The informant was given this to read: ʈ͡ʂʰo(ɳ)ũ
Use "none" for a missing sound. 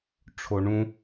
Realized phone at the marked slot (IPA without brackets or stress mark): ɳ